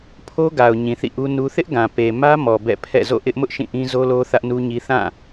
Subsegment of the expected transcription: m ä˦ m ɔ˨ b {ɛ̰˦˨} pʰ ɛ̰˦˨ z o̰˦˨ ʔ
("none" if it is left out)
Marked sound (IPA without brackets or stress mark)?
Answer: ɛ̰˦˨